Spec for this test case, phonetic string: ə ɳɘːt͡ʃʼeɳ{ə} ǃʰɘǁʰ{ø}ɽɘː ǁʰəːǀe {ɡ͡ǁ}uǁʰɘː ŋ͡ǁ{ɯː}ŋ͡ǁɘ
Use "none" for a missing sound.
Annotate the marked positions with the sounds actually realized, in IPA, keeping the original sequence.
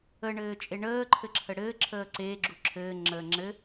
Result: əː, ə, ɡ͡ǁ, əː

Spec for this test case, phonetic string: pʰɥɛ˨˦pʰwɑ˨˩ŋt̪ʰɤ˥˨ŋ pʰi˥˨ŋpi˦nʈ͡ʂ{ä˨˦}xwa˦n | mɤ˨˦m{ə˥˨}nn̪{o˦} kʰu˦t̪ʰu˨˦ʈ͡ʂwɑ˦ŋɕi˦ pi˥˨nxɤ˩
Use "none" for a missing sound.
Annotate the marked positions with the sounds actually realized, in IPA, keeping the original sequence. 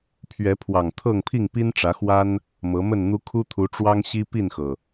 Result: ä˨˦, ə˥˨, u˦

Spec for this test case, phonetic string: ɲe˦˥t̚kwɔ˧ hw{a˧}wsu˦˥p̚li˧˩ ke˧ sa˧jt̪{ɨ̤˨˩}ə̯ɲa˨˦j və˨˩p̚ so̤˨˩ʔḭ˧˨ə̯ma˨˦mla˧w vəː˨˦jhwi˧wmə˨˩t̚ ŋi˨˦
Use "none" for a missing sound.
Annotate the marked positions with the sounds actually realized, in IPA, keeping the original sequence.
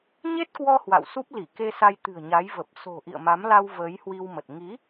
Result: a̰˧˨, ɨ̤˨˩

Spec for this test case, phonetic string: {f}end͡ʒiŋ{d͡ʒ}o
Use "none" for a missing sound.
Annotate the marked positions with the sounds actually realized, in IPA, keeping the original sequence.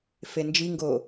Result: f, ɡ

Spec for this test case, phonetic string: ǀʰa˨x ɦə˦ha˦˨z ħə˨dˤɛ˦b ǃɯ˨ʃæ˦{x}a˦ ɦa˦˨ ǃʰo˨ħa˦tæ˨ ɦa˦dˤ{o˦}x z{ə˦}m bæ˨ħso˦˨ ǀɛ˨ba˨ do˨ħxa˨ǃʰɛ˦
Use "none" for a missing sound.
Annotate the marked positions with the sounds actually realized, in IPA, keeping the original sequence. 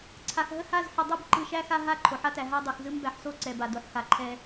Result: x, o˨, ɯ˦

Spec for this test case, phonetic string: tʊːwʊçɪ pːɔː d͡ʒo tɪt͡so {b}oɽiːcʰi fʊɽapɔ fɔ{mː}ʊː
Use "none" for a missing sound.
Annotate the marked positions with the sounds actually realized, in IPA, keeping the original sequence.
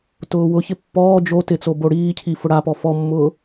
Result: b, mː

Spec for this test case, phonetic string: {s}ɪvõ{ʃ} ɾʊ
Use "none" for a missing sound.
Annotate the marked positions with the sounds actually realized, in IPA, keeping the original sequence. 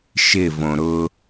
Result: ʃ, none

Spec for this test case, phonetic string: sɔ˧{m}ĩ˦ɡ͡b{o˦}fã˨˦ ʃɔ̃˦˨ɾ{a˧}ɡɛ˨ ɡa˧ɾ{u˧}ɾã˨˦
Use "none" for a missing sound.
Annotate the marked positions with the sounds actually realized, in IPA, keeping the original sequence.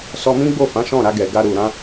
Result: m, o˦˨, a˧, u˨

